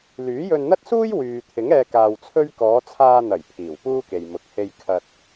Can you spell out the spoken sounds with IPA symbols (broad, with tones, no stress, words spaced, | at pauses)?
lyː˨˥jɵ˧nn̪ɐ˥t̚suː˥j wyː˨ t̪ʰɪ˨˥ŋɛː˧ kaː˧wt͡sʰɵ˥ɥ kɔː˨˧t͡sʰaː˧n̪ɐ˨˩j pʰiː˨˩wpuː˥ke˨j mʊ˨k̚he˧j kʰɐ˧t̚